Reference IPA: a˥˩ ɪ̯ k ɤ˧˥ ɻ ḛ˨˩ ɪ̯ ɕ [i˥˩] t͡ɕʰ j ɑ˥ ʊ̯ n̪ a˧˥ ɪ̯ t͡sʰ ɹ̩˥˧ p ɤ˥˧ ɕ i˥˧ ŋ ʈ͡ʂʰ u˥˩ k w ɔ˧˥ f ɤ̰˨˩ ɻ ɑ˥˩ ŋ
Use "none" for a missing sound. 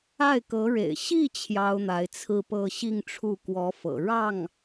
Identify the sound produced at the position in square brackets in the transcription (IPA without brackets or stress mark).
i˥˩